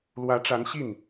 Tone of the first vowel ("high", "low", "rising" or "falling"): rising